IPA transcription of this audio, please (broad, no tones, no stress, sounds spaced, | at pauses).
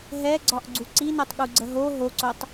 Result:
ɦ ɛ ɡ͡ǀ ɒ ʔ ɡ͡ǀ u ǀ i n o tˤ ɠ u ɡ͡ǀ ə ɦ o ɦ o ǀ o tˤ